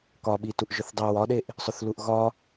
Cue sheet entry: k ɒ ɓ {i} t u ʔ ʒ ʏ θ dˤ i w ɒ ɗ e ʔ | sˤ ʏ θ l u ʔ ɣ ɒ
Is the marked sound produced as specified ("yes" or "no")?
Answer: yes